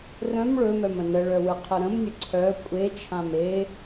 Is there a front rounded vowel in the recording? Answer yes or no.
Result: yes